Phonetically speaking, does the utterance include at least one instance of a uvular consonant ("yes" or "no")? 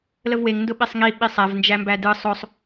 no